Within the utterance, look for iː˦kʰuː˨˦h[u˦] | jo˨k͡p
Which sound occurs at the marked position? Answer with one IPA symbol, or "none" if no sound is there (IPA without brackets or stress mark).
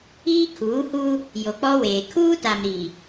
u˦